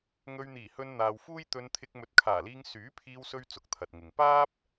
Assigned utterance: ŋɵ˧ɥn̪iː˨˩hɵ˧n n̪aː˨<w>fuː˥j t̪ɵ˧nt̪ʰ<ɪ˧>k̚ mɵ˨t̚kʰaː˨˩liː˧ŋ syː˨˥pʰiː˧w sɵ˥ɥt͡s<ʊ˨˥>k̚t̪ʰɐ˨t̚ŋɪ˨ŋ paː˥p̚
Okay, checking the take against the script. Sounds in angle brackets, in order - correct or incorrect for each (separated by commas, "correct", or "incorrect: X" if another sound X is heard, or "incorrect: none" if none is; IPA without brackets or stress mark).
correct, correct, correct